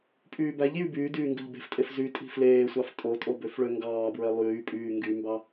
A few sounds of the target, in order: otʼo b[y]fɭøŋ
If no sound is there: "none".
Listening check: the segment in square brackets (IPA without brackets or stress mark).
ø